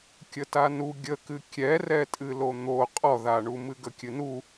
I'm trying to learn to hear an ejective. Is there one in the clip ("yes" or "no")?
yes